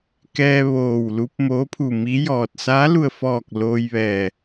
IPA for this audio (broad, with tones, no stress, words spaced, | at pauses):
kɛː˧ ʋoː˧˩wlu˧˥p̚ moː˧˥pʰu˧˩mi˧˥ jɔː˧˩t̚ saː˧˥lu˧˩ə̯fɔː˧˩k̚ loː˧jʋɛː˧˩